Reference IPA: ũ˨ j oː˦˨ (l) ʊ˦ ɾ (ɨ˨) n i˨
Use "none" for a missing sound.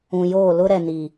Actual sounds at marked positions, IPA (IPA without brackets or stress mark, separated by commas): l, ɛ˨